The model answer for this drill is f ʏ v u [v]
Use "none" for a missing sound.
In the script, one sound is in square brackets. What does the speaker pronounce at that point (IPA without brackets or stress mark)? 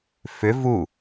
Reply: none